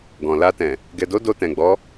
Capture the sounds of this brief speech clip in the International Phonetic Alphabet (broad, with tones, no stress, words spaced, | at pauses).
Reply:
ɡɔ̃˨la˧tɛ̃˨ | ɡɛ˨do˨˦ do˧tɛ̃˨ɡ͡bɔ˨˦